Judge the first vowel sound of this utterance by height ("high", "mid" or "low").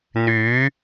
high